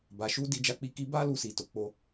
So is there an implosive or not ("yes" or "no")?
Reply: no